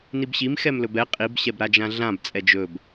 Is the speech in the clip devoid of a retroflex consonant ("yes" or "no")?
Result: yes